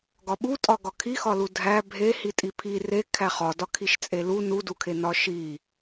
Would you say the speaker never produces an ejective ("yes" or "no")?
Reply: no